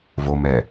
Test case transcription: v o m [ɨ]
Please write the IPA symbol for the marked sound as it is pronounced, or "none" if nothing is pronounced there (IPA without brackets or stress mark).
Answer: ɛ